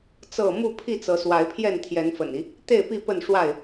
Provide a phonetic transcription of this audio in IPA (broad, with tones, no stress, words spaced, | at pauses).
t͡sɤ˥˨ mu˥˨pʰi˥˨ t͡sɤ˨˦swa˨˦ɪ̯pʰjɛ˥˨n t̪ʰjɛ˨˦nfə̰˨˩ni˦ | t̪e˥˨ɪ̯pi˥˨ pə˥˨nʂwa˥˨ɪ̯